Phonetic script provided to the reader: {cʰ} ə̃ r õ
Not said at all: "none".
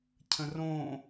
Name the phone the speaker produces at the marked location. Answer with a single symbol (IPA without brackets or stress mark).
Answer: cʰ